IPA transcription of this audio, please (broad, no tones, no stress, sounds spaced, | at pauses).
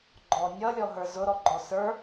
ɡ͡ǃ ɔ nʲ ʌ lʲ ɔ ɦ ə˞ z ʊ ɾ ɔ ɡ͡ǃ ɔ s ə˞